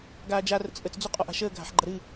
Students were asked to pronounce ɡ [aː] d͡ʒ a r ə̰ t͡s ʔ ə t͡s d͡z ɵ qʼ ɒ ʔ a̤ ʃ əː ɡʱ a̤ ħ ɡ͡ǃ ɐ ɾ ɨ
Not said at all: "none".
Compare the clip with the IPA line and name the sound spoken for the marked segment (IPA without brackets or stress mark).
aː